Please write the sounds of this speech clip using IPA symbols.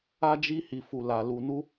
a˧ d͡ʒ i˧ h i˨ f u˨ l a˨ l u˨ n u˧

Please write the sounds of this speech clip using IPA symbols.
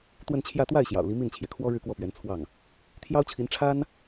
t̪ w ə˥˧ n t͡ɕʰ j ä˥˧ t̪ w a˥˩ ɪ̯ ɕ j ɑ̰˨˩ ʊ̯ l i˧˥ m i˥˩ n t͡ɕʰ j ɛ˩ kʰ w ɔ˥ ɻ ɻ̩˥˧ k w ɔ˥˩ p ɥ ɛ˧˥ n t͡sʰ w ɑ˥˩ ŋ | t̪ʰ j ɑ˥ ʊ̯ t͡ɕʰ i˧˥ n ʈ͡ʂʰ a˥ n

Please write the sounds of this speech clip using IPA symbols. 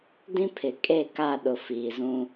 d ĩ˦ pʰ ɪ˨ kʼ e˦˨ k a˦˨ ɗ ʊ˨ f iː˨ z ũ˦

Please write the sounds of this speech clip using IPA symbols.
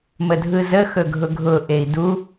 m ə dʱ ɯ z ə x ɵ ɡʱ ʊ ɡʱ ʊ ʔ e i̯ d u

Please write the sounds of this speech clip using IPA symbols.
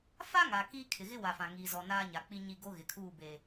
f a˦ ŋ a˨ k iː˦ kʰ ɪ˨ ɣ ɪ˦ w a˨ f ã˨ ŋ iː˨ z ɔ˨ n aː˦ ɲ a˨ k͡p i˦ ɲ i˦˨ ɡ o˦ ɣ ɪ˨ kʰ uː˦˨ b eː˨

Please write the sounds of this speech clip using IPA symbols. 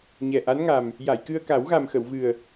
ɲ ɛ˨˩ ʔ a˧˥ n ŋ a˨˩ m | j a˨˩˨ j k ɨ˧ ə̯ k a˨˩˦ w ɣ a˨˩ m x ə˨˩˨ w v ɨ˨˩ ə̯

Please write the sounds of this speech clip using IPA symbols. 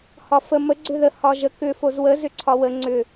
h ɒ f ə m ə ɡ͡ǀ ʏ ð ə h ɒ ʒ ə k ʏ f o z w ə z ʏ ǀʰ ɒ w ə ŋ͡ǀ ʏ

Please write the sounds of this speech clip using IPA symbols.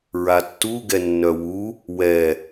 ɹ a tː u ɡ ɛ nː œ w u | w ɛ

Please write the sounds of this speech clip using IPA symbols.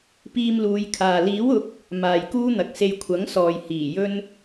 p iː˧ m l uː˨˧ j kʰ aː˨ l iː˨˥ w ʊ˨˥ k̚ | m aː˨ j k uː˥ n̪ ɐ˨ k̚ s e˧ j kʷʰ ɐ˨˥ ŋ s ɔː˨ j h iː˨˩ j ɵ˥ n

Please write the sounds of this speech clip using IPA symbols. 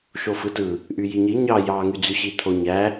ʃ o f ɯ t ɯ | ʔ y j i ɲ i ɲ ɑ j ɑ ŋ y d͡z y ɕ i t̪ʰ o ɲ æ

